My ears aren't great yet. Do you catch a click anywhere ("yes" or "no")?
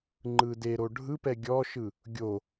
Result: yes